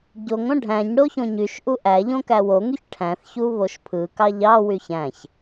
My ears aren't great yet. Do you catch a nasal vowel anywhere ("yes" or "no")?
yes